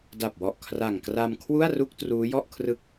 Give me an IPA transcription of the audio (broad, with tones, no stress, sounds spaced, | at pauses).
d a˨˩ p̚ w ɔ˨˩ ʔ kʰ r a˨˩ ŋ k r a˧ m kʰ w u˥˩ a̯ r u˥˩ k̚ t r uː˦˥ j ɔ˥˩ ʔ kʰ r ɯ˥˩ k̚